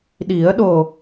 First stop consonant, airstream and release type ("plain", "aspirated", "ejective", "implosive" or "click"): implosive